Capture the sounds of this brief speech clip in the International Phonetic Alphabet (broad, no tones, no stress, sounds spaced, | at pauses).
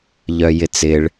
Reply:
ʎ œ j ɪ t͡s ɪ ɭ